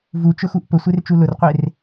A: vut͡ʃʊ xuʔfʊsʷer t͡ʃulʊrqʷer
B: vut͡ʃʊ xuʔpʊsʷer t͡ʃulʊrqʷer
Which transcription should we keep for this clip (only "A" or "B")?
B